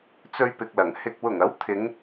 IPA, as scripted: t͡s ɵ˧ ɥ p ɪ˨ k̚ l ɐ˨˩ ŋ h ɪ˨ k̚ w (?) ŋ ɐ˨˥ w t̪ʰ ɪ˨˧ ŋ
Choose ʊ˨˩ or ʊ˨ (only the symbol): ʊ˨˩